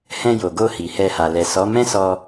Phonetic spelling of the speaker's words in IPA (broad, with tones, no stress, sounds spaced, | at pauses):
h ɛ̃˧ j o˨ ɡ o˧ h i˨ h ɛ˧ h a˨ l ɛ˨ s ɔ˨˦ m ɛ̃˦ s ɔ˧